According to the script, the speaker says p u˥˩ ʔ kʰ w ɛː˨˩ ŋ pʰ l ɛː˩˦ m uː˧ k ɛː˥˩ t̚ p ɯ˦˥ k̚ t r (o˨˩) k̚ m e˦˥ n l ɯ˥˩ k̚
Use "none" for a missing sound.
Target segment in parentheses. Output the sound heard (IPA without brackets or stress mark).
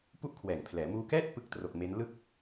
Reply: o˨˩